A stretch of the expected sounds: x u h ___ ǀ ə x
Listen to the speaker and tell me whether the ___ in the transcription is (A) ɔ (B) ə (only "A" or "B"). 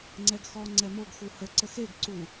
B